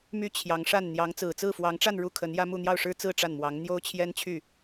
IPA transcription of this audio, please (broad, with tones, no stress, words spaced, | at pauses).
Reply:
my˥ t͡ɕʰjɑ˧˥ŋ ʂa˥˩nn̪jɑ˧˥ŋ t͡sɹ̩˨˩t͡sɹ̩˥˩fwɑ˧˥ŋʈ͡ʂa˥˧n ɻu˥˩kʰə˧˥njä˥mu˥˧ n̪jɑ˥˩ʊ̯ʂɻ̩˥t͡sɹ̩˥˧ ʈ͡ʂa˥˩nmwɑ˧˥ŋ n̪jo˥ʊ̯t͡ɕʰjɛ˥n t͡ɕʰy˥˩